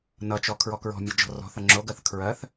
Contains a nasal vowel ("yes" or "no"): no